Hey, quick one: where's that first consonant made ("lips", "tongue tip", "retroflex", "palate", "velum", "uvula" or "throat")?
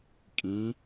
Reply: velum